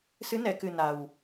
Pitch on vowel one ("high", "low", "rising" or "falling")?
rising